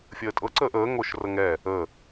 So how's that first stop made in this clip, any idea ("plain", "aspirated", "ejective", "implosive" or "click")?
ejective